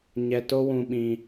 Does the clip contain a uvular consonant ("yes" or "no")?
no